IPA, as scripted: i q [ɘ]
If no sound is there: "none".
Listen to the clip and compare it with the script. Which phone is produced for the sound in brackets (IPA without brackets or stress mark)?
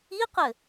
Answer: ɘ